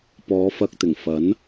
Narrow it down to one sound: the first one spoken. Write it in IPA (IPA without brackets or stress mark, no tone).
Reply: p